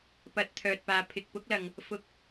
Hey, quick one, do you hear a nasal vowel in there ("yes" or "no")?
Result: no